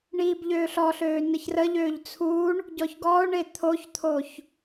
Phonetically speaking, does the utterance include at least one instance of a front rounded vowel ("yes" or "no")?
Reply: yes